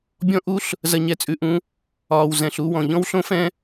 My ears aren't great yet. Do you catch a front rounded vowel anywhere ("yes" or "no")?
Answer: no